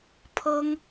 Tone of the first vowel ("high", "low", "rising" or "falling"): high